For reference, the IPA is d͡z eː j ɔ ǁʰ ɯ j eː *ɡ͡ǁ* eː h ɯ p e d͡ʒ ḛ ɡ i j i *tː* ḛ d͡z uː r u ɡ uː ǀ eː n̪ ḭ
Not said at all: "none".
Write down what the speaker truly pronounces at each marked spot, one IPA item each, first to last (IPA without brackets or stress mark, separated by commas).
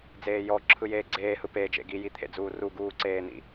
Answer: ɡ͡ǀ, t̪ʰ